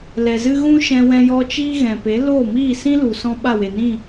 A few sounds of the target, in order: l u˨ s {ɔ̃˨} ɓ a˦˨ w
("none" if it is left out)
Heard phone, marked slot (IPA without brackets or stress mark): ɔ̃˦